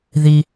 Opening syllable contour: low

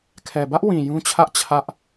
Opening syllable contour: low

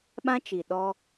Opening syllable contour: high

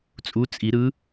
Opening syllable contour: rising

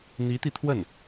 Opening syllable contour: rising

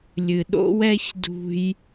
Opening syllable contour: low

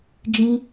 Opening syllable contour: high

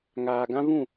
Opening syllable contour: low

